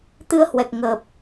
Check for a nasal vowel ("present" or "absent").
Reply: absent